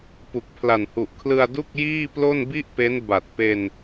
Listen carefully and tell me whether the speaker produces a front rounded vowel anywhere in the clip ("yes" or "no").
no